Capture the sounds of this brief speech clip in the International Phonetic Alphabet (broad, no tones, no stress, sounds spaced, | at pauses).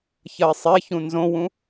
ç ɐ i̯ sˤ e ç ũ n z õ w ũ